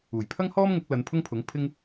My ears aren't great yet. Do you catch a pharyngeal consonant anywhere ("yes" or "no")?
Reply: no